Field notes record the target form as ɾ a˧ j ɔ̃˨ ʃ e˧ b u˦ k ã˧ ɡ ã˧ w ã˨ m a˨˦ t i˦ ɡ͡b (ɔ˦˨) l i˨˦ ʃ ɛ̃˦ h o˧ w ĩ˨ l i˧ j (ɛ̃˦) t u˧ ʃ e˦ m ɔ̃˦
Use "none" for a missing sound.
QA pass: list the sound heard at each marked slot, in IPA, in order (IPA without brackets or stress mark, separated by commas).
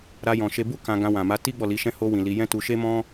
ɔ˦˨, ɛ̃˦